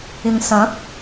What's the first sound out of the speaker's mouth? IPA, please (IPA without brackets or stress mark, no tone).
ɪ